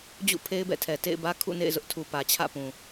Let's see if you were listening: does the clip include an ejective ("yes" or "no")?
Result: no